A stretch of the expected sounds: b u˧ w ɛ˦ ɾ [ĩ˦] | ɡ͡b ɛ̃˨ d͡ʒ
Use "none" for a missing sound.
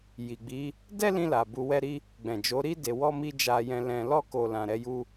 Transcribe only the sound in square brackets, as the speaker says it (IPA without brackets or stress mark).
i˦